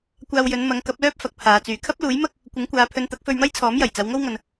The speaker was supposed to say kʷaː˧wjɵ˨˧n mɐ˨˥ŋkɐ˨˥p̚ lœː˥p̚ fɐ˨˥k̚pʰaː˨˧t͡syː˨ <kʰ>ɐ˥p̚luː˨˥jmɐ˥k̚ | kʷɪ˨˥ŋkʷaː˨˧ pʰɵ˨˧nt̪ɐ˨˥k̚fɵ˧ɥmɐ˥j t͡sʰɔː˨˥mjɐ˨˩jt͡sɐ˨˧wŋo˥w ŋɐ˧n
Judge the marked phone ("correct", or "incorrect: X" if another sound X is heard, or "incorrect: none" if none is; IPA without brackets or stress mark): correct